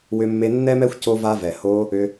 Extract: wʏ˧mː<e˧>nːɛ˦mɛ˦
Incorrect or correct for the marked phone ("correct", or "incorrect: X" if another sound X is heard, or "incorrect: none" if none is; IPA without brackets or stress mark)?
correct